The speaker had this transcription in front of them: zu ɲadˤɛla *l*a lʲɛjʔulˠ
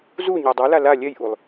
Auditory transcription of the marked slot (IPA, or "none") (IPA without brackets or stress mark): l